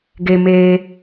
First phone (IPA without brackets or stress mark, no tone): ɡ